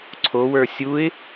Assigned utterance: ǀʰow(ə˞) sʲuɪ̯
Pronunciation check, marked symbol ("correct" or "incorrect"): correct